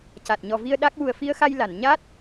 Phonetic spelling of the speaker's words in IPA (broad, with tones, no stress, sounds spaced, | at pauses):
c a˨˩ t̚ ɲ ɔ˨˩ v i˧ ə̯ ɗ a˦˥ k̚ w u˨˩ ə̯ f i˧ ə̯ x a˧ j l a˨˩˨ n ɲ a˦˥ t̚